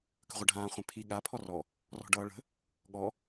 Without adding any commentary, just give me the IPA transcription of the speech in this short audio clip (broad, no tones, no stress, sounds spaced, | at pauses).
k ə̤ ʁʷ ʌ ɖʱ ãː χʷ ɛ̃ pʰ i ɠ a pʰ ɔ r ɔ | r ɔ̤ ɖ ʌː ɭ ə̤ | ɠ ɔ